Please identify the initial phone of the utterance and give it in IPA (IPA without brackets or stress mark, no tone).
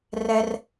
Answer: r